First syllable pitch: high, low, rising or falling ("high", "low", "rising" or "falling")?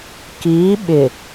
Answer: rising